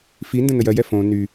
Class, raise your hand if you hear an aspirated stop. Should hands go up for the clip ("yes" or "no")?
no